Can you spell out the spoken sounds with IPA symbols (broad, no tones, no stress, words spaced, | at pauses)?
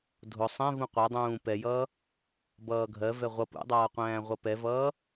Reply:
dʱʊ sˤɛ̃ vũqʷɛdˤũː pɛjʌː | bʌːɡʱɜvɛ ʁʷʌ pṵdˤʌːqʷæ̃ː ʁʷʌpɛvʌː